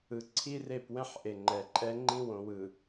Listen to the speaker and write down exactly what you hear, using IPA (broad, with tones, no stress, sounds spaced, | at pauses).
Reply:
ɯ˨ ǀʰ i˦ r e˦˨ p w ɛ̃˦ ħ ʔ e˨ ŋ͡ǃ ɛ˨ ǃʼ ɛ˦ ŋ͡ǃ ĩ˦ w õ˨ w ɯ˨